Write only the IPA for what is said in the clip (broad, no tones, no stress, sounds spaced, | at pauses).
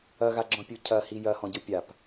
ɐ ɣ a ɡ͡ǁ ɔ̃ pʲ u cʰ ɐ h i j ɐ h ɔ̃ ɟ ɯ pʲ a p